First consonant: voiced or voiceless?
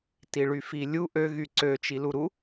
voiceless